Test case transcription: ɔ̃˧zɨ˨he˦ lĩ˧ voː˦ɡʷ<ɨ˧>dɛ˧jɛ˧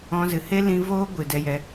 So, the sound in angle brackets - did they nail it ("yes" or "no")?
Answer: no